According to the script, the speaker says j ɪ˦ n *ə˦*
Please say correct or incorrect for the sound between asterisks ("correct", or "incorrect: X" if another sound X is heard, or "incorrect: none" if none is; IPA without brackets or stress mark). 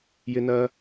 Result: incorrect: ɐ˦